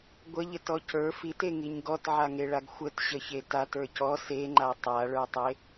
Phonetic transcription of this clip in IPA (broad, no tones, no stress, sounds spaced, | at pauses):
ɡʷ ə ʎ ə t ɔ c ə˞ f i t e ŋ i ɲ ɡ ɔ t ʕ a ŋ e ɭ a ɡ xʷ ə t ɕ ə ç e t a t ə˞ c ɔ s e ŋ͡ǃ a tˤ a ɭ ə˞ tˤ e